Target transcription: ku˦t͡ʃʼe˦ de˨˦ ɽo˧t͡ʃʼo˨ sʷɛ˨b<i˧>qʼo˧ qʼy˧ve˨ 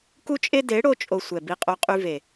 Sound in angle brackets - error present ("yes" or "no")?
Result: no